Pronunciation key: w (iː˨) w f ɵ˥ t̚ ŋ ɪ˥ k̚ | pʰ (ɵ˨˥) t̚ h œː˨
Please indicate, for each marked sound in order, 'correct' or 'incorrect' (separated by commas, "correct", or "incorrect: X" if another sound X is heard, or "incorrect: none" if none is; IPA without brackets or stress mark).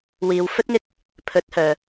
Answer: correct, correct